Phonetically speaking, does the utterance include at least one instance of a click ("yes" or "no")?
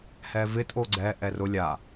yes